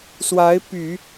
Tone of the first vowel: rising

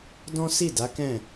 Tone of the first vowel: high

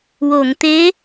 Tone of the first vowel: low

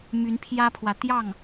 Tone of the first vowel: rising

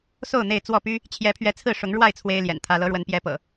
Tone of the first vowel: falling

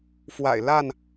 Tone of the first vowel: low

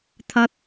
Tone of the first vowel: high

